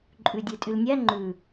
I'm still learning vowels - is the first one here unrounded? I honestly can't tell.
no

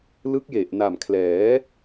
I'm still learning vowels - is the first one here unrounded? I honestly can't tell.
yes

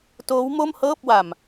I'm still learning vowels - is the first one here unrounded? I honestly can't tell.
no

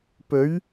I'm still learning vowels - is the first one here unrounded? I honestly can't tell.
no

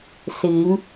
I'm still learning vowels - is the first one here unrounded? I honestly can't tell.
yes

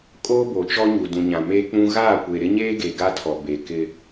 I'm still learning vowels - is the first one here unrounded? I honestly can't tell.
no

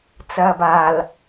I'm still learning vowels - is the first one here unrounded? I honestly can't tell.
yes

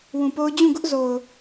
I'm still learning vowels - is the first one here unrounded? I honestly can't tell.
no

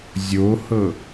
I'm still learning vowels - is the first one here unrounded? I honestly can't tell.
no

